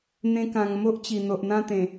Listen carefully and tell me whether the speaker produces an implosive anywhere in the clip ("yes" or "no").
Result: no